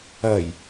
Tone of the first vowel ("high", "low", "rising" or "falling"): low